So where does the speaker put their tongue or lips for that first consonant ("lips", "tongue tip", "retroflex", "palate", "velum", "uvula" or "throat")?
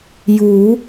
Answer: palate